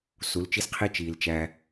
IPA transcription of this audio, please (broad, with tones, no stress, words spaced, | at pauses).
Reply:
su˨˦lt͡ʃi˦sqʰi˦ t͡ʃiː˨lt͡ʃæ˦